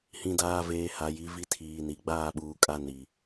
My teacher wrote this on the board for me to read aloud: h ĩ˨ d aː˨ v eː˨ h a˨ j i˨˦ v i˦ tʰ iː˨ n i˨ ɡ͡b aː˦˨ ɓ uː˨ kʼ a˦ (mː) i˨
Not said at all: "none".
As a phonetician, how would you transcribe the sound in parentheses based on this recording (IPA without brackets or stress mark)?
n